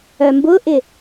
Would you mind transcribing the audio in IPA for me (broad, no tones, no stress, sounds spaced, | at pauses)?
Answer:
œ m b ʊ ʔ ɪ